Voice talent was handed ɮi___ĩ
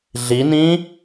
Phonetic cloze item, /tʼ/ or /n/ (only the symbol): n